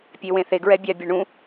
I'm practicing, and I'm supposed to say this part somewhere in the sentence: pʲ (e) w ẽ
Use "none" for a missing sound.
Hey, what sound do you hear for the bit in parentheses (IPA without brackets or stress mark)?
e